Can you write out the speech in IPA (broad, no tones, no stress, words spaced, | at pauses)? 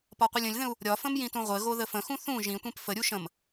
pɒqʷɘlʲə̃lʲðə̃u̯ | ɾʲɒfə̃m jĩtũʁʷɘɣo ðəfə̃xũ θũ ʒĩtʷɛ̃p fəɾʲu ʃə̃m